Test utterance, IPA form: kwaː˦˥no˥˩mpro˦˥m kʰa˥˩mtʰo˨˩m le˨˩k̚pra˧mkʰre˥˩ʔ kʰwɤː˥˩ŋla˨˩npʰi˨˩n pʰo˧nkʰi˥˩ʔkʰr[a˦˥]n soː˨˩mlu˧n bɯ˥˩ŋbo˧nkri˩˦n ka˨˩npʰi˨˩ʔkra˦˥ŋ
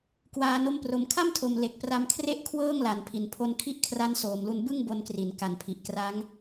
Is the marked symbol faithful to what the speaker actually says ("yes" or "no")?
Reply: yes